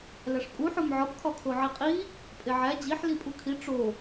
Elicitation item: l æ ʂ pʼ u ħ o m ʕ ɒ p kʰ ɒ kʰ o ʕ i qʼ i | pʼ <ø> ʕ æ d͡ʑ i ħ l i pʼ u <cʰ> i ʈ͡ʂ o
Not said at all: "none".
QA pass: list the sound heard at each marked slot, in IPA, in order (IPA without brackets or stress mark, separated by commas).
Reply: e, kʰ